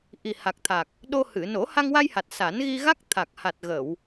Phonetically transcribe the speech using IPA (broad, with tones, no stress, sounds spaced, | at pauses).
ʔ i˨˩ h a˨˩ k̚ t̪ʰ a˨˩ k̚ | ɗ o˧ h ɨ˨˩˨ n o˨˩˦ h a˧ ŋ w a˧ j h a˨˩ t̚ s a˨˩˦ n ɣ i˧ ɣ a˦˥ k̚ t̪ʰ a˨˩ k̚ h a˨˩ t̚ ɣ ə˨˩˨ w